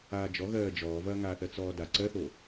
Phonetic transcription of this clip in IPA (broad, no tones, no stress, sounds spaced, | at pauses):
aː d͡ʒ ɔ ɣ ɜː d͡ʒ ɔː v ɐː ŋ aː θ ɜ t͡s ɔː d a ǀ ɜ θ o